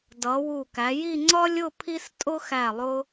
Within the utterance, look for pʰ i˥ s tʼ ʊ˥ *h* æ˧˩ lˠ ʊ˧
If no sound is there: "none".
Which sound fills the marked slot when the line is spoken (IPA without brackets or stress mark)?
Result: x